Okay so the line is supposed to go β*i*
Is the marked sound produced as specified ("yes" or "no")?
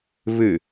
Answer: no